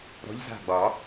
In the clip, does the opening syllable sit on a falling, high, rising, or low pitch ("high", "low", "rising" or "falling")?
rising